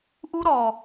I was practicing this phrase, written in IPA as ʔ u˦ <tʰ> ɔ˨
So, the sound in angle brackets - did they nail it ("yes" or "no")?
no